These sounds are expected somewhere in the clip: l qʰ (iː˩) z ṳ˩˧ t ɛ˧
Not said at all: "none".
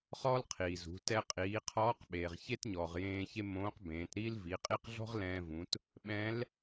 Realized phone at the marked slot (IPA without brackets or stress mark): iː˩